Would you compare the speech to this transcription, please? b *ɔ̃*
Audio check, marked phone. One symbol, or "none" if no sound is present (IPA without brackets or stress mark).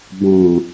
ɔ̃